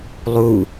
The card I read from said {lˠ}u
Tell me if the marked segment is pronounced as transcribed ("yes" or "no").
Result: yes